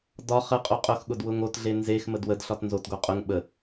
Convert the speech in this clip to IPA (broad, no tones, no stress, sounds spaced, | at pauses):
d ɒ χ ə qʼ o qʼ ʊ x ɠ ʊ d w ʊ ŋ o t ɮ e n z e x m ə d w ə d ɬ ɒ t n z o t ɡ o qʼ ʊ ŋ ɓ ə